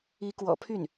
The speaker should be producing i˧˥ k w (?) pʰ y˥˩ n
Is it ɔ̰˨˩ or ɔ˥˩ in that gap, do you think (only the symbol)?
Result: ɔ̰˨˩